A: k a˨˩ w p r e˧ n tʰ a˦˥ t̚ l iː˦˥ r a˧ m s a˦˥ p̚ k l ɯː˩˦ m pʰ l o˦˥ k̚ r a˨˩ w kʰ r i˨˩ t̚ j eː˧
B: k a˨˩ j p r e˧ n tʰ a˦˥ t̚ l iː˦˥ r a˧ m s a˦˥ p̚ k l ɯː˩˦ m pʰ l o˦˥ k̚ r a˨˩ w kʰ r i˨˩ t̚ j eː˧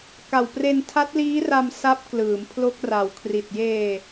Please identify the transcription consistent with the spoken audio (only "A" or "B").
A